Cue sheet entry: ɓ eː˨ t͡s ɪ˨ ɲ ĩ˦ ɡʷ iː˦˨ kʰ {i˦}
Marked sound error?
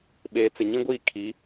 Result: yes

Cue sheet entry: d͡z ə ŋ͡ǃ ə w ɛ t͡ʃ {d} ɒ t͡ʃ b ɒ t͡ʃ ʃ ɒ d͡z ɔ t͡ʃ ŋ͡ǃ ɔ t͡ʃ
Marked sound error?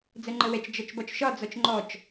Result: yes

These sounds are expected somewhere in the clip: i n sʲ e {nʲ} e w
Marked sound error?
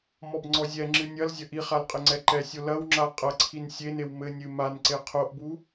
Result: yes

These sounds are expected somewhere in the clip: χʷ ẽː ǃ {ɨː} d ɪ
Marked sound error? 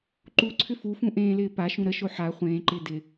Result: yes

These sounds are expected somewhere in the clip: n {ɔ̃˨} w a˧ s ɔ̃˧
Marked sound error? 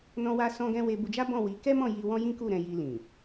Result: yes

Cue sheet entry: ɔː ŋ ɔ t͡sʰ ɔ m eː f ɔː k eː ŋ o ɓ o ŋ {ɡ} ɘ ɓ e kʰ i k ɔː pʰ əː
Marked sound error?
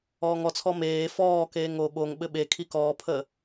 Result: yes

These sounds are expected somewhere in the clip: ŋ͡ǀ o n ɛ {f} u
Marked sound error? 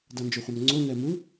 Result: yes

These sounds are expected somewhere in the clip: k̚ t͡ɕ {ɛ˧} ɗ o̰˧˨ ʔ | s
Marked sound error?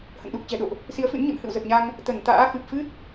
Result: yes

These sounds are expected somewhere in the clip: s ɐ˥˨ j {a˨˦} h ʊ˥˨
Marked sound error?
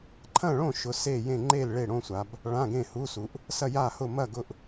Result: yes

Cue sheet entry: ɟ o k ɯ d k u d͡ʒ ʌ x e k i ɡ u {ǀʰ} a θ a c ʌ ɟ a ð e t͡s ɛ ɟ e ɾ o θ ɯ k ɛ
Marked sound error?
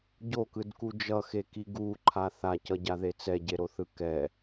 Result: yes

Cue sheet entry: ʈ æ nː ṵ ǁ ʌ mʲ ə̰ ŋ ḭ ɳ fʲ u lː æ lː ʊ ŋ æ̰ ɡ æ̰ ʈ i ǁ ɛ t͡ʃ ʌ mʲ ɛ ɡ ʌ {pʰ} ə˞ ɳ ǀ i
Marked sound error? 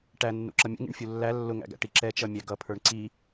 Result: no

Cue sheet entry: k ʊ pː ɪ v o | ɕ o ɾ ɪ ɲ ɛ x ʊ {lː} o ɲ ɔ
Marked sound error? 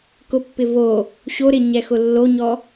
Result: no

